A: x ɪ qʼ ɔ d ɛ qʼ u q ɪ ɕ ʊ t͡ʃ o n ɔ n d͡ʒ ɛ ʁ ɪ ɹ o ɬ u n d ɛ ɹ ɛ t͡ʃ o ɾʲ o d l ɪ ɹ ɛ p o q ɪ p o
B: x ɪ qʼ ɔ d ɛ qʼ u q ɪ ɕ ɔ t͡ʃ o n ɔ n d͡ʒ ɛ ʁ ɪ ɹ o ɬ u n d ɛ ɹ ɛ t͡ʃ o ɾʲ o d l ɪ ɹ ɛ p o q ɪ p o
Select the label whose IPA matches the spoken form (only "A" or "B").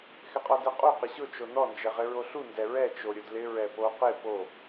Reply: A